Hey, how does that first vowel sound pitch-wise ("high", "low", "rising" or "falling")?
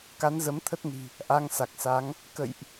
rising